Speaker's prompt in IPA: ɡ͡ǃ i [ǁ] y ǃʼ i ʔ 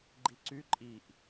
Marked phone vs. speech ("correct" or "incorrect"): incorrect